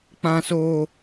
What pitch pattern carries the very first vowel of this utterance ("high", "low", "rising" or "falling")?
high